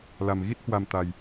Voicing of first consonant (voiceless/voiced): voiced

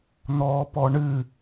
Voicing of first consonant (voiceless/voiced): voiced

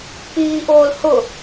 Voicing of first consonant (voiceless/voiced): voiceless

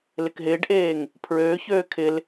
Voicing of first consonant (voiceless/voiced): voiced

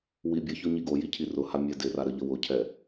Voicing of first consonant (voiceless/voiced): voiced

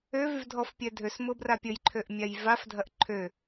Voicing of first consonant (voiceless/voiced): voiced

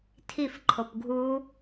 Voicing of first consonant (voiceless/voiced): voiceless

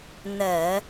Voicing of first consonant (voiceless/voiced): voiced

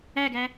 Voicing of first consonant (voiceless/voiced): voiced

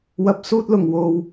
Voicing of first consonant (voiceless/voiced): voiced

